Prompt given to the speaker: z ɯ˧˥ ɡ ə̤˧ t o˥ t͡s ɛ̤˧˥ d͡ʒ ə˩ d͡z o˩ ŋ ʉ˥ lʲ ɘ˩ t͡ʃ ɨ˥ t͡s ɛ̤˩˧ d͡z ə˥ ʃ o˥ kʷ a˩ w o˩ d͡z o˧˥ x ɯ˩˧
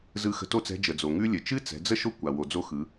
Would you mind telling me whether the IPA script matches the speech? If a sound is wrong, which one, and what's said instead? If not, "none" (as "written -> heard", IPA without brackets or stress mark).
ɡ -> x